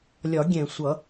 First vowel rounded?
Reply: yes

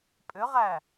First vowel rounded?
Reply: yes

